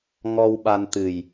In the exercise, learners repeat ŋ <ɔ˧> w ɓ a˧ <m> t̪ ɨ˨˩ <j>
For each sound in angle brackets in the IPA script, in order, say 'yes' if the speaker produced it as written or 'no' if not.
yes, no, yes

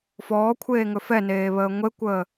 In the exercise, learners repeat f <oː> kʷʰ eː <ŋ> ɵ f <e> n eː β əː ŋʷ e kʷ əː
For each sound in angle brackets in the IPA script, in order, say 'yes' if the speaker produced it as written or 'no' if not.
no, yes, no

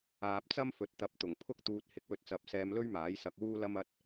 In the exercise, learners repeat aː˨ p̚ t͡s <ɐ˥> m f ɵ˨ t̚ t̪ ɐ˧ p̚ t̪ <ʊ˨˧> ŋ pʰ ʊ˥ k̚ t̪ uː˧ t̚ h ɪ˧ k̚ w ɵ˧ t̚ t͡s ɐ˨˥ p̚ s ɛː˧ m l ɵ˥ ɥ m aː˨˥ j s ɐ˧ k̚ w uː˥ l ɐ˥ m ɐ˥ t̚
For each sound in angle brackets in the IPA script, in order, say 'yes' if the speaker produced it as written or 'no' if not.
yes, no

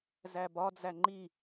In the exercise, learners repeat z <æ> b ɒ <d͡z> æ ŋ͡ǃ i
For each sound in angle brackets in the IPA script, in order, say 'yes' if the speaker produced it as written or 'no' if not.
yes, yes

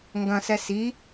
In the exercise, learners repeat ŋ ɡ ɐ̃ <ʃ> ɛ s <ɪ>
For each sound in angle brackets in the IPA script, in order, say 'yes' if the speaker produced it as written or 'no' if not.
no, no

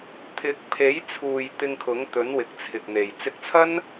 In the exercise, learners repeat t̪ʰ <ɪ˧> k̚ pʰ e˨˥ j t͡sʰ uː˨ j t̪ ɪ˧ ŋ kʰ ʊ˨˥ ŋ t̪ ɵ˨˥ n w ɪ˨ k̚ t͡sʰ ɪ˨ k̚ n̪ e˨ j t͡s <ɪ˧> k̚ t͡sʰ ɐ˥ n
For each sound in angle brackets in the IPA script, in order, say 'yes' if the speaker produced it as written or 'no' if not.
no, yes

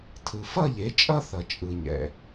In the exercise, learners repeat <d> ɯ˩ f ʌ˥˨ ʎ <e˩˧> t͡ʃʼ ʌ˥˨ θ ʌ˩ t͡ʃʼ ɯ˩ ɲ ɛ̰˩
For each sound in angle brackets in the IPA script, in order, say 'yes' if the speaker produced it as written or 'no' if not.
no, yes

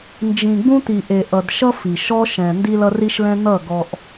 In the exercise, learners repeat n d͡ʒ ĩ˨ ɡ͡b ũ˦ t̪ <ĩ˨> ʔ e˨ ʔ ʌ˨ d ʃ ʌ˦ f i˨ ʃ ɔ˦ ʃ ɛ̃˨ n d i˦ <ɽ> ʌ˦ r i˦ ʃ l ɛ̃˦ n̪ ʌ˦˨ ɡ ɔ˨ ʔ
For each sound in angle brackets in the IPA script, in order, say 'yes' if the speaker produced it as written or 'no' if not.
no, no

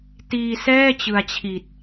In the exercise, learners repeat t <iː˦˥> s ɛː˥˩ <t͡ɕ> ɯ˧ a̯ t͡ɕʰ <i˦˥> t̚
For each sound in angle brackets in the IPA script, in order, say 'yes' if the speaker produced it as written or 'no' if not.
no, yes, no

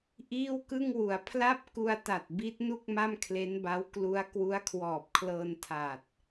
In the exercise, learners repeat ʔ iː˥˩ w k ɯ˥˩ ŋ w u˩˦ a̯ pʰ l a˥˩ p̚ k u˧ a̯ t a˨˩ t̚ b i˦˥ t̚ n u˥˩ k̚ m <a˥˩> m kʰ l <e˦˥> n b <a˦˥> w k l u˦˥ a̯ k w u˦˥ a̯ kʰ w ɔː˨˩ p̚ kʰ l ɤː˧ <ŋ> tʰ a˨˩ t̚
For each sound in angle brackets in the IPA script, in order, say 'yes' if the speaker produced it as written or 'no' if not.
yes, yes, yes, no

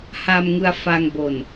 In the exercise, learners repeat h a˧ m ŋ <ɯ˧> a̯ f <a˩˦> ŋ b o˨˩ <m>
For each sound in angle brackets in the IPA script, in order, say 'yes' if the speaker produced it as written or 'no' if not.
yes, no, no

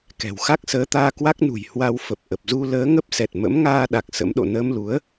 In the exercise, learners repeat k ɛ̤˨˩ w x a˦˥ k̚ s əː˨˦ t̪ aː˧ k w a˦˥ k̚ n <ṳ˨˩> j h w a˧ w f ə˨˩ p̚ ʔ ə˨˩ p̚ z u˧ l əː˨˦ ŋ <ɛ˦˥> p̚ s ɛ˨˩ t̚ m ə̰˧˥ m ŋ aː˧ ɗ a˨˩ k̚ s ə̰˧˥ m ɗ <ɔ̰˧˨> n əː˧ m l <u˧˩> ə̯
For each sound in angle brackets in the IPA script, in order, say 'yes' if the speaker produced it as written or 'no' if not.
yes, no, no, no

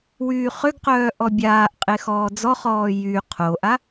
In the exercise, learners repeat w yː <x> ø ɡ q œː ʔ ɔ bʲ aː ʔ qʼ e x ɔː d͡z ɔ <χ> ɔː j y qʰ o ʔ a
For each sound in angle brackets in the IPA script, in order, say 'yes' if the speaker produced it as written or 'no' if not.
no, yes

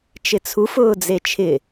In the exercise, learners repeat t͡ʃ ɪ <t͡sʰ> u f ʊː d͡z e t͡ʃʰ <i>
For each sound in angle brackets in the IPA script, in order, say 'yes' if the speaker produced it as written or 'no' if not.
yes, no

